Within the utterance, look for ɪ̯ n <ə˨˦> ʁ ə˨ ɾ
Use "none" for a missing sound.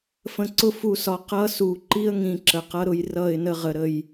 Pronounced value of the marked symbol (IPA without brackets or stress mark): ə˦